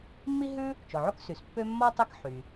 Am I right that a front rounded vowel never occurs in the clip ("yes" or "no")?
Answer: no